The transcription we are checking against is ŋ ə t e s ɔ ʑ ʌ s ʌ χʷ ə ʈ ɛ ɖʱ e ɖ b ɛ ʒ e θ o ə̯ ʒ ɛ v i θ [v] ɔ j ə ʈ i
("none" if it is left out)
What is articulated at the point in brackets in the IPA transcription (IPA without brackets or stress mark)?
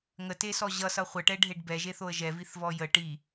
v